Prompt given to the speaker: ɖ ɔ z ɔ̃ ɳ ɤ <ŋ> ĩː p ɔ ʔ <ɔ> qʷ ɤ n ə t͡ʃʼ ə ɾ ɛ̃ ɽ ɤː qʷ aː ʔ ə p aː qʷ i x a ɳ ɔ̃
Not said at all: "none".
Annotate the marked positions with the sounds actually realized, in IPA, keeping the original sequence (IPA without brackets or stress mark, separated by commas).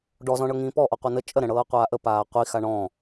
ŋ, ɔ